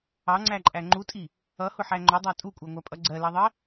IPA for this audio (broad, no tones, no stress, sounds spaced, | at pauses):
ɑ ŋ͡ǀ æ ǃʼ æ ŋ͡ǃ u tʼ i | ʌ h ʊ ħ æ ŋ͡ǃ ʊ dˤ ɑ tʼ u kʷʼ ɑ ŋʷ æ pʼ ʌ ɡ͡ǀ ɜ l ɜ ðˤ ɜ